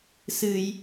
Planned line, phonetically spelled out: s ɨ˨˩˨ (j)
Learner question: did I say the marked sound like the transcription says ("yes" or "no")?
yes